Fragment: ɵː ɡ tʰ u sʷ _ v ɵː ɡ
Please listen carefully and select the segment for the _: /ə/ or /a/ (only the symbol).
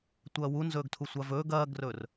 a